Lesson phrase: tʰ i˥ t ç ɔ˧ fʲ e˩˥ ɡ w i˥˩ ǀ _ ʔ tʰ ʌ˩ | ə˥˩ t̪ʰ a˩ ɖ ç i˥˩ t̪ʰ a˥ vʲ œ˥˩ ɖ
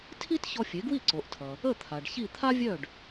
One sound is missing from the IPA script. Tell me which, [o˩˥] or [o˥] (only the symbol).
o˩˥